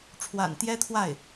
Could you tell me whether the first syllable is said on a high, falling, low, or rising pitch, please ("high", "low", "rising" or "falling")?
low